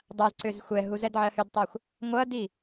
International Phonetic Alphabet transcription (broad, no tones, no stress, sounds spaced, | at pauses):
dˤ a z ǀ ʏ z xʷ ɛ ɦ u z ɛ d ʕ ɜ h ʏ d tˤ a xʷ | ŋʷ ɐ d i